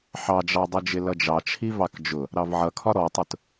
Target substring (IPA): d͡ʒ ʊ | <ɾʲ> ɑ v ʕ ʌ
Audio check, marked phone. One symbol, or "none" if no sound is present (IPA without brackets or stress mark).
ɾ